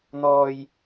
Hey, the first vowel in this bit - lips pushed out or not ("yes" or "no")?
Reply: yes